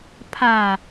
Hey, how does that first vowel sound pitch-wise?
low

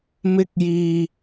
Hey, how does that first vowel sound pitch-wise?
high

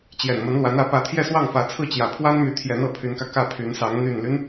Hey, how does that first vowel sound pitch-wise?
low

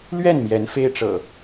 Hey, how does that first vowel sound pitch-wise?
falling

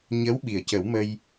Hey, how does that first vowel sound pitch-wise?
rising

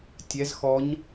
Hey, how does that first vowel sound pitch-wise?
rising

